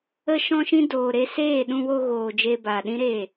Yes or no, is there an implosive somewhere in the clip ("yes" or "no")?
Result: yes